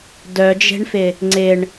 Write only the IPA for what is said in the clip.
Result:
dœd͡ʒe̤ɳfɪ | ŋ͡ǀɪɳ

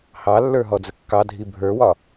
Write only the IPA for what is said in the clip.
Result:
hɑlːə˞ɦɔd͡zə kːɑdʱi bʱə˞wɒ

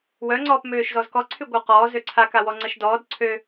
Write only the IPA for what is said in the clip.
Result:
wœŋ͡ǀɔːp møːʃzɔzkɔ ǀʰyɡʷəwqɔː zøǀʰakawɔ ŋ͡ǀəʃdɔːd ǀʰø

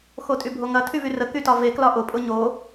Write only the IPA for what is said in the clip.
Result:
xotʼybʱoŋɐ tʰyvyrə kytɒve klɒʔʊ pʼʊɲo

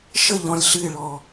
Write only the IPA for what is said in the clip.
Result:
ʃəʎɔ̃lʲ ɬɨɪ̯ɭɔ

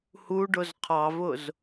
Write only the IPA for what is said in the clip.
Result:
huɖʊz qʰɑvʊz

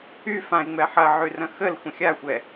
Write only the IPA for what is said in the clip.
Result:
y fãɪ̯ŋ͡mɛ ħɐʕyrɐ̃ xəlxʷə̃ xʲaxʷɛ

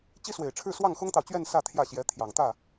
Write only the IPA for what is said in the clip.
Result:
t͡ɕi˥swe˨˩ɪ̯ʈ͡ʂʰɻ̩˥˧ swɑ˥˩ŋxʊ˥ŋt̪ɑ˨ʊ̯t͡ɕɥɛ˥˧n sä˥˧t̪ʰjä˥˩ɕjɛ˧˥ t̪ʰjɑ˨˩ŋt̪ä˥˩

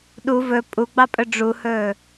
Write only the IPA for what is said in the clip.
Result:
ɗu vɵ pʼuɡ͡bɑpʼɵ ɖ͡ʐuhɵː

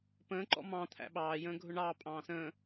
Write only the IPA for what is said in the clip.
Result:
pə̃ːǃɔ̰ mɑ̃ t̪ʰæ̰ɓɑːjə̃ː ɡʱʊɳɑː pʼɑ̃ːsə̃ː

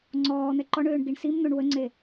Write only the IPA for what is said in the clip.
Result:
ŋ͡ǀɔː n̪ɛǃɔɳøːɳ ɡiɳsimn̪oɳ wəŋ͡ǀe

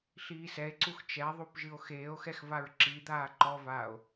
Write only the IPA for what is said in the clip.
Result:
ɬiːsɛe̯ǀux t͡ʃɛðˤup ʒɨo̯xeːo̯xɛx vaɹǁid̪aː ǃɔvaːo̯

